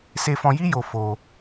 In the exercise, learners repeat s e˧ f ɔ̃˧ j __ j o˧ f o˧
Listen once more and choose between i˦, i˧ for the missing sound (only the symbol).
i˦